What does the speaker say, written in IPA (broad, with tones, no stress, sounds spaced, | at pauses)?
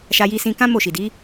ʃ a˧ j i˧ s ĩ˧ k ã˦ m o˦˨ ʃ i˨ d i˨˦